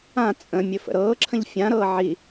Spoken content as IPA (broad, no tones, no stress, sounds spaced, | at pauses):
ã t͡sʼ ə̃ mʲ ɵ f ə̰ ɾ ɤː ǁʰ ə̃ ʎ fʲ ã ɾ ɤː ʕ i